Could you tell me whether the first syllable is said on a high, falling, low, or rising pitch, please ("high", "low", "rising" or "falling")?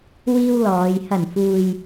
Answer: high